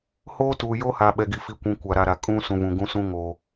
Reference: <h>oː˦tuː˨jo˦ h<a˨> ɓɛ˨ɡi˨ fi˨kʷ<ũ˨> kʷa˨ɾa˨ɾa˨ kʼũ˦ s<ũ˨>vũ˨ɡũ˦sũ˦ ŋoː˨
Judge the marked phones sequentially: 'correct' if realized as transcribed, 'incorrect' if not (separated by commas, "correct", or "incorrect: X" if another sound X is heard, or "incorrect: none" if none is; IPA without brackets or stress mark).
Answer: correct, correct, correct, correct